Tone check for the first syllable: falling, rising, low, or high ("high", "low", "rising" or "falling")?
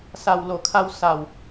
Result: low